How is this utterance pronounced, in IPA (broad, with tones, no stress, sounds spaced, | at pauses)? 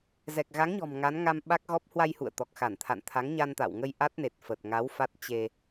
z ɛ˨˩ k̚ ɣ a˨˦ ŋ ɲ ɔ̤˨˩ m ŋ a˨˦ n ŋ a˧ m ɓ a˦˥ k̚ ɣ ɔ˦˥ p̚ h w a˧ j h ṵ˧˨ ə̯ t̪ ɔ˨˩ k̚ x a˧˩ n t̪ʰ a̰˧˨ n t̪ʰ a˨˦ ŋ ɲ a˧ n t̪ a̰˧˨ w ŋ ə˧ j ʔ a˦˥ t̚ n e˨˩ t̚ f ə˨˩ t̚ ŋ a˨˦ w f a˦˥ t̚ t͡ɕ e˧